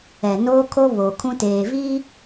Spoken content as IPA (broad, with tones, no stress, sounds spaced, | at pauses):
ɛ˨ n oː˦ kʰ o˦ β o˨ kʰ ũ˦ t eː˨ v i˦